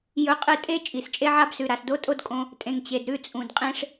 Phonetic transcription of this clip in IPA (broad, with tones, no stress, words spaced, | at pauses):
jɵ˨qʼɨ˨ tʼe˦ t͡ʃʼi˨st͡ʃʼe˦ʕa˦bsʉ˨ ɾa˨sdo˦tʼo˦d kʼõ˦ | tʼẽ˨ŋt͡ɕe˨dɾʉ˦˨ t͡sʼũ˨dqʼẽ˦ʂ